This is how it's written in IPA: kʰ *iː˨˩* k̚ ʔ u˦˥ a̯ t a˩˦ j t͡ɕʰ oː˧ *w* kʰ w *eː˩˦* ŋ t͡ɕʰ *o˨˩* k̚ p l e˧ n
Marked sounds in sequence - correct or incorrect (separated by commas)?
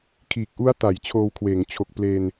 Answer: correct, correct, correct, correct